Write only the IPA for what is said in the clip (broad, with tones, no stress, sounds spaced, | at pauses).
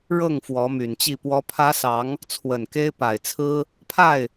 ɻ ɤ˥˩ ŋ f w ɔ˧˥ m y˨˩ n t͡ɕ i˥˩ p w ɔ˥ pʰ ä˥ s ɑ˧˥ ŋ | t͡sʰ w ə˨˩ n k e˥ ɪ̯ p a˨˩ ɪ̯ t͡sʰ ɹ̩˥ | pʰ a˥˩ ɪ̯